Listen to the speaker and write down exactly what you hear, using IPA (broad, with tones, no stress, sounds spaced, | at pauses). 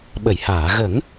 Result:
ɓ ə˨˩˨ j h aː˨˩˨ ɣ ə˨˩˦ ŋ